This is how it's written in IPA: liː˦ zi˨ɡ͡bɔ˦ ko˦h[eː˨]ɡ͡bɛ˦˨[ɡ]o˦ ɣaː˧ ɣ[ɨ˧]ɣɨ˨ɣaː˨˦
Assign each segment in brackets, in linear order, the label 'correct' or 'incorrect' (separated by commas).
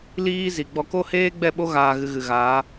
incorrect, incorrect, correct